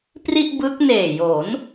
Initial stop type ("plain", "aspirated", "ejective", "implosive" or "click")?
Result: plain